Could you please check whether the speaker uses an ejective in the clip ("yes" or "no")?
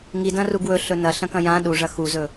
no